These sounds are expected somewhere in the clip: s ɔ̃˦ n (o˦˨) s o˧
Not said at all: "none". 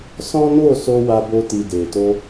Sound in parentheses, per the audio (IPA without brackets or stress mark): o˦˨